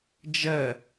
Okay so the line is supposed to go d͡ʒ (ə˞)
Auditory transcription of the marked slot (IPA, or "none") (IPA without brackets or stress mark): ɜ